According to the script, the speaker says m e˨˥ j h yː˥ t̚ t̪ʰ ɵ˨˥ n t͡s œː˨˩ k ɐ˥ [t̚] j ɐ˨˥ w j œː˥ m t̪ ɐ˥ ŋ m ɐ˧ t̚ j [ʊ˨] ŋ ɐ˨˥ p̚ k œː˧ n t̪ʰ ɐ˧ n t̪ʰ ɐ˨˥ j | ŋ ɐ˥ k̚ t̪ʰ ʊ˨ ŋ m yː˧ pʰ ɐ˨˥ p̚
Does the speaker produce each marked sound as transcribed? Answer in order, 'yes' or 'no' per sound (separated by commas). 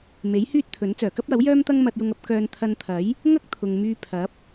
no, no